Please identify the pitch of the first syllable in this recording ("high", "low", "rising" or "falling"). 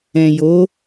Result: low